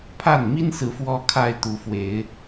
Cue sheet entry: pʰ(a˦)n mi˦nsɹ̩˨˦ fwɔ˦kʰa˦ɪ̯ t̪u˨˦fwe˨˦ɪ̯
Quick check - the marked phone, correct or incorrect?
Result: incorrect